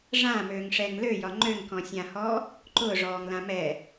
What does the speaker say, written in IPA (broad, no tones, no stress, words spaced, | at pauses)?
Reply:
ʐã møːŋʂɛŋlø jɒŋ͡ǃøŋkɔ̃ sʲãhɔː | ǃʊːʐɔːŋlã mɛ